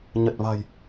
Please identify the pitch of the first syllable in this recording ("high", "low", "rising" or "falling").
low